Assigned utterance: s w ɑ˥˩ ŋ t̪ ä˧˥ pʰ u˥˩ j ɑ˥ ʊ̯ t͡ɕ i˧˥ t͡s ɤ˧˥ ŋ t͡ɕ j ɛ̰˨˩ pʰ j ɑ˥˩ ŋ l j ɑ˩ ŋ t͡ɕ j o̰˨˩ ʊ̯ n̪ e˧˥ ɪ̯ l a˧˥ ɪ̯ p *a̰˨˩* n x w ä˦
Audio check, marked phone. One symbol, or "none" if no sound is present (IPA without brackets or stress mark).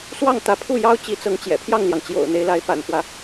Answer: a̰˨˩